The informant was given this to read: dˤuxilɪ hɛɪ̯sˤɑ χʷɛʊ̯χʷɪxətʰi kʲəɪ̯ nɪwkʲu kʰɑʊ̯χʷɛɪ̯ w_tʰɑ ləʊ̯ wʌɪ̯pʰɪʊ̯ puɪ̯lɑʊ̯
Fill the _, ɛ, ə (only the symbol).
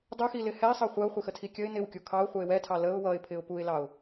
ɛ